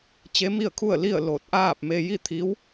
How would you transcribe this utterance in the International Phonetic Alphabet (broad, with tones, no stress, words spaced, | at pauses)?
t͡ɕe˧˥mi˥˨ə̯kʰu˥˨ə̯li˥˨ə̯ lo˧˩t̚ʔaː˥˨p̚ me˧ji˥˨t̪ʰi˧˥w